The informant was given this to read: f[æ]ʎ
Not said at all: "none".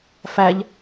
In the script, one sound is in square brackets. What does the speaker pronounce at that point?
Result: æ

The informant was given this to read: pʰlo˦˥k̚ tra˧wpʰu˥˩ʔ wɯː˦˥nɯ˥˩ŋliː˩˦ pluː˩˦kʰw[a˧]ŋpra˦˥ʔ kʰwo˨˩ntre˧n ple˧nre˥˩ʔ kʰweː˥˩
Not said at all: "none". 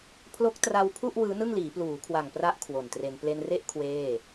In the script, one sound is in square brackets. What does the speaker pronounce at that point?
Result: a˨˩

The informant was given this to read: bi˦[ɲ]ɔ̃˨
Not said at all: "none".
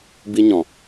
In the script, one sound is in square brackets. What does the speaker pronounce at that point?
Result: ɲ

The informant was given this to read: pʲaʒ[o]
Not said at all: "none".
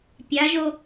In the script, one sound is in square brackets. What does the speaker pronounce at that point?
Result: o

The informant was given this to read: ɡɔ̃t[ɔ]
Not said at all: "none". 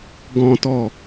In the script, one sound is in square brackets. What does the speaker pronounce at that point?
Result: ɔ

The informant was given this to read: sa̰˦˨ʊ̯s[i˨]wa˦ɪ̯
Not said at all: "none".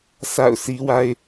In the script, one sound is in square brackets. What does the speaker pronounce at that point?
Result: i˦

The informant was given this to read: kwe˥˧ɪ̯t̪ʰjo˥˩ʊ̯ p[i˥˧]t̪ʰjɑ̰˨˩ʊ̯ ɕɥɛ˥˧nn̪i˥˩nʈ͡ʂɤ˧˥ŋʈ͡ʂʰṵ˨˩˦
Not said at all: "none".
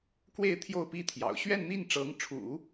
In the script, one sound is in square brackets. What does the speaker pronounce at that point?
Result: i˥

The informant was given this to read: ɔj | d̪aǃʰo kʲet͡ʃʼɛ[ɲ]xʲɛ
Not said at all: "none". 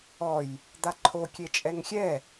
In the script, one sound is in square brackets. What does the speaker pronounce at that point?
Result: ŋ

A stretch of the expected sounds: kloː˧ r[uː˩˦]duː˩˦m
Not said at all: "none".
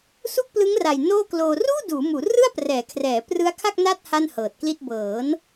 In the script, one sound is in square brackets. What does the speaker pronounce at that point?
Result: uː˥˩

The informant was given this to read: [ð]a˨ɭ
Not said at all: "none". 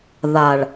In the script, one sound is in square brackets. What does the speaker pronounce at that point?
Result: ð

